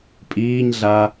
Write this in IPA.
pʼ iː ɲ ɮ a

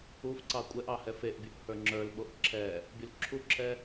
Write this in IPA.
u f ǀ ɑ kʷʼ ɛ ʔ ɑ h ɛ f e ʔ bʲ u ʔ h ə˞ ŋ͡ǁ ə˞ l ɓ o ʔ ǁʰ ɛ | bʲ o l ǁʰ u ǁʰ ɛ

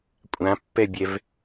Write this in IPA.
kʷʼ ã pː ɛ bʲ ɛ v

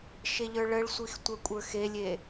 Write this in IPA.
ʃ e ʎ ə˞ ɭ ə ɭ sʷ i x tʷ œ kʷʼ ə˞ x e lʲ e

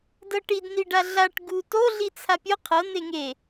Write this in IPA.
d ɤ ʈ i d n i ɖ a ɮ a ʈ ɡ u t o ɮ i t͡sʰ a pʲ o qʰ ɤ n̪ e ŋ e

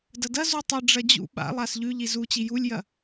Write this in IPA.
d ɐ d ɐ z u tˤ ɨ ɖ͡ʐ ɐ d͡ʑ ṵ ɓ a̰ lˠ a s ʎ ʉ ʎ i z u t͡ɕ i j u lʲ j ɐ

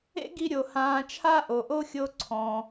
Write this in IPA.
ḛ˥ ɡ i˧ ɾʲ o˩ h ãː˧ t͡ʃʰ a˥ ʔ o˩ ʔ o˥ xʲ o˧ ǀʰ ɔ̃˩

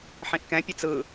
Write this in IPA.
ħ ĩ ʔ k ɛ̃ pʲ e t͡s ɯ

